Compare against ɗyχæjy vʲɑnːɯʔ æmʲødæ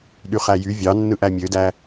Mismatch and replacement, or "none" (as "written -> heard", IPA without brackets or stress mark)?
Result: none